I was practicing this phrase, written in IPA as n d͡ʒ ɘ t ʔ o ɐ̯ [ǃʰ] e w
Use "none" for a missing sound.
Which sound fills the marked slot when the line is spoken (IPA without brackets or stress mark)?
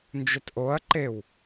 ǃ